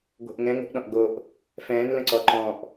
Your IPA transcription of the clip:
ɡʷ ə̤ ʔ ŋ ɛ̃ ŋ o̤ ʔ ɗ ɔ̃ ʔ ɡ o ʔ | f ɛ̃ː n l ə̃ ǀ ɔ ǃ ɔ̃ ʔ

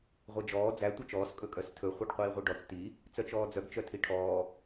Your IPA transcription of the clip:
ʁʷ e d͡ʒ ɔː d͡z æ tʷ œ t͡ʃ ɔː s kʼ ɵ kʼ œ s tʰ ɵ χʷ œ ɖ qʷ iː ʁʷ i ɖ ɔ t͡s t i | t͡s œ t͡ʃ ɔː d͡z œ ɡ t͡ʃ œ tʰ i ʈʰ ɔː

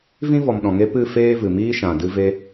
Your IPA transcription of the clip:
v ĩ˦ v ɔ˨ m ɗ ɔ̃˨ ŋ e˧ p ɨ˦˨ f eː˦ v ɨ˨ m iː˦ ʃ ã˨ d ɨ˧ v e˧

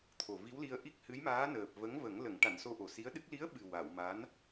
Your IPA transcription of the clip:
t̪ʰ o˨˩ v i˧˥ w l i˧ ə̯ ʔ i˦˥ k̚ h ɨ˧˥ j m aː˧˥ n əː˨˩ p̚ v ə˧˥ ŋ v ə˨˩˦ ŋ l ə˨˩˨ ŋ ʈ a˨˩˨ n s o˧ ʔ o˨˩ s i˧˥ ə̯ ɗ ɨ˦˥ k̚ l i˧˥ ə̯ ɓ ɨ˨˩ w a˨˩˨ w m a˧˥ n

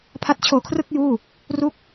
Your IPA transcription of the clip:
pʰ a˦˥ t̚ t͡ɕʰ oː˧ kʰ r ɯ˥˩ k̚ j uː˥˩ | r u˦˥ k̚

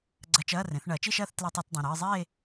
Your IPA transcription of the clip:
ɡ͡ǀ ɐ˧˥˧ t͡ʃ ɐː˧˥˧ r ẽ˩˥ θ ɳ ɐː˩˥ t͡ʃ i˥˧ ʃ ɐː˥˧ θ t l ɐ˧˥˧ tˤ a˧˥˧ t dˤ ẽ˩˧˩ ɾ ɨː˥˧ zˤ eː˥˧

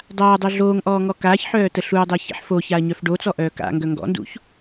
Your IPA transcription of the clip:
dˤ aː dˤ œ ɮ oː ŋ ʔ ɔː ŋ ɔ k aː ç ħ œː t ə ɬ u ɐ̯ dˤ əː ç ḛ ħ f o ç a ɐ̯ ɲ œ f ɖ o t͡s ɔ ʔ œː k a̰ ŋ ɡ œ ŋ ɡ ɔ̰ n d ṵ ç

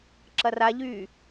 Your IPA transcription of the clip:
ǁ ɐ r a ʎ yː

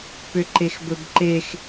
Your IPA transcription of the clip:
p ʏ ǃ e x b ɵ b ǃ e x

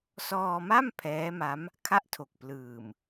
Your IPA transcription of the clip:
s ɔː˧ m a˥˩ m pʰ ɛː˦˥ m a˦˥ m | kʰ a˥˩ ʔ tʰ o˨˩ k̚ p l ɯː˨˩ m

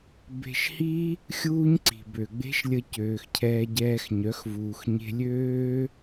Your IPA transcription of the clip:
b e̤˧ ʃ h i˦ | xʲ uː˦ ɲ ǀ i̤˨ b ø˨ ɡ͡b e̤˦ ʃ lʲ ə˧ c øː˨ x cʰ ɛː˧ ɟ ɛː˧ x ɲ œ˨˦ x v uː˨ x ɲ e̤˧ lʲ øː˦

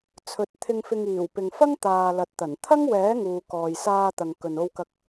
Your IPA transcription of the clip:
t͡sʰ ɵ˨˥ t̚ t̪ʰ ɪ˧ ŋ f ɪ˧ ŋ iː˨˩ w p ɪ˨ ŋ f ɐ˥ ŋ t̪ aː˨ l ɐ˨ t̚ t̪ ɐ˨˩ n t̪ʰ ɐ˥ ŋ w ɛː˨˥ ŋ uː˨ k ɔː˨ j s aː˧ t̪ ɐ˨ ŋ k ɵ˨ n o˧ w k ɐ˧ k̚

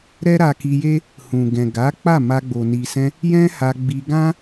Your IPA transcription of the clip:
ɾ ɛ˦ ɾ a˧ k i˧ j e˦ | h ũ˨ ɡ ɛ̃˨ ɡ a˨˦ k͡p a˦˨ m a˧ ɡ͡b o˨ n i˨ s ɛ̃˧ | j ɛ̃˦ h a˧ ɡ͡b i˧ ɡ ã˦

